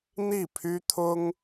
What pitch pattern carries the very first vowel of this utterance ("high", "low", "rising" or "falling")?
falling